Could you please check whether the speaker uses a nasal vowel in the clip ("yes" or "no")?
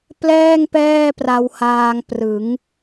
no